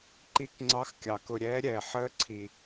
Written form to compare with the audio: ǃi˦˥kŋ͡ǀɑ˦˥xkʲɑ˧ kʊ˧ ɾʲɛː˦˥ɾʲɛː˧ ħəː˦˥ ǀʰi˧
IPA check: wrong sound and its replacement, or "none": none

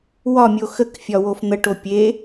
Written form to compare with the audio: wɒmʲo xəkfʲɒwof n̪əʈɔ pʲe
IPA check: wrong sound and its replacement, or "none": ɔ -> o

